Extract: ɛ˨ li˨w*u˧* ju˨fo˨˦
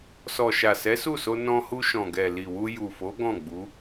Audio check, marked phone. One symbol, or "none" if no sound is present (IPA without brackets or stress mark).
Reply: u˧